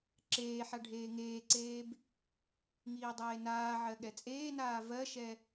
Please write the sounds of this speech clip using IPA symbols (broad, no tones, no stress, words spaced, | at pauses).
ǁeːħa ɖʱeːŋeːǀeːb | ŋiːdˤeːnaːʕɜ ɠɛt͡sʼeːnaː vɜʃɛ